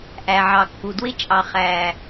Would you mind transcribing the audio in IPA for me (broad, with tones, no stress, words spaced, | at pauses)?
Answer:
ʔæ˨ʕɑ˨kːu˨ dwɪ˦t͡ʃʼɑ˨ χæ˨